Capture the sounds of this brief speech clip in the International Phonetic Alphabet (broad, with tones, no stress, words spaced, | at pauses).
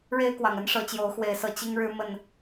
ɻe˦ɪ̯kwɑ˨˩ŋə˦n ʂɤ˨˦t͡ɕjo˨˦ʊ̯xwe˨˦ɪ̯sɤ˨˩ t͡ɕi˦ŋɻɻ̩˦mə˥˨n